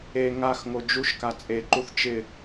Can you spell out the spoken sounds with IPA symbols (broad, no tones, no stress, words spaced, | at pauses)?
e ŋaxŋo d͡ʒuʃka t͡sʼeǃuθ t͡ʃɪ